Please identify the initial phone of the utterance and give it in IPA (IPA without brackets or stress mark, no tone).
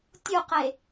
tʲ